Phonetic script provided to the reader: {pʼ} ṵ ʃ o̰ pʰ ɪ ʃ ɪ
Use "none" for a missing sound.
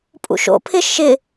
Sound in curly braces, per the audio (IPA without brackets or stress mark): pʼ